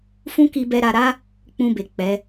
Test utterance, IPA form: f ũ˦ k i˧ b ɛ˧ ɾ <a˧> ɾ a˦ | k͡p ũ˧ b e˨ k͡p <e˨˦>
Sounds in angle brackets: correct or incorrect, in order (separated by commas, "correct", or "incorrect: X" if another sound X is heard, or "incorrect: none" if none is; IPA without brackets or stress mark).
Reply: correct, incorrect: ɛ˨˦